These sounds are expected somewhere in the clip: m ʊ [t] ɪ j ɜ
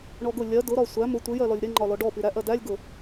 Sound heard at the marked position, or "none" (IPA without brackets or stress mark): tʷ